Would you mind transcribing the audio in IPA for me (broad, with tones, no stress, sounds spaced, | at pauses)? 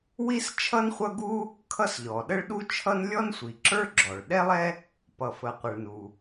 w i˥ s t͡ʃʰ ʌ˥ n χʷ ʌ˥ ɡ u˥ | kʰ ʌ˥ s ʎ ɔ˩ ɗ ə˥ ɭ ɗ u˥ t͡ʃʰ ʌ˥ n lʲ ɔ˥ n sʷ i˩ ǁ ə˞˥ ɡ͡ǁ ɔ˩ ɭ ɗ ɛ˥ lˠ ɛ˥ | p ʌ˩ f ə˩ qʷ ʌ˩ ɭ n u˩